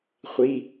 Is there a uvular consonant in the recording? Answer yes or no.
yes